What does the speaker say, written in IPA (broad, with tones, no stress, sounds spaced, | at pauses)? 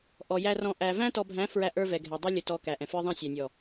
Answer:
ʔ ɔ˨ j æ˨ r ɔ̃˨ ʔ æ˨ v æ̃˦ t ɔ˨ bʱ æ̃˨˦ f ɹ æ˦ ʔ ə˞˦ v ɛ˨ ɡʱ ɛ˨ dˤ ɪ˦ lʲ ʊ˨ t ɔ˨ k æ˨ ʔ ɛ̃˨ f ə˞˦ ðˤ æ̃˦ sʲ æ˨ nʲ ɔ˨